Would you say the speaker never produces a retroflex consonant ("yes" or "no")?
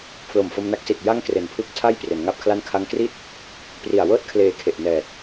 yes